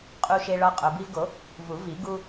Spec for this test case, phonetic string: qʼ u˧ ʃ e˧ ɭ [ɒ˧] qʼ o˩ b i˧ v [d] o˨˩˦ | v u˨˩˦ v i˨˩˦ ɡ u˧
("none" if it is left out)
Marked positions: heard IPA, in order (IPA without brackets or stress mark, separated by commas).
ɒ˧, ɡ